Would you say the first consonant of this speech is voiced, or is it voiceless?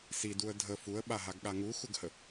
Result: voiceless